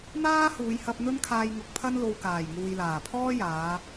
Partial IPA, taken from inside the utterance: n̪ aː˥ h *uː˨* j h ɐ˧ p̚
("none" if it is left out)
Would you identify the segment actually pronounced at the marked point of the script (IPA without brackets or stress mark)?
uː˨˧